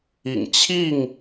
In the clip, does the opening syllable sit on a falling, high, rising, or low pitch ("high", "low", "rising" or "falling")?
low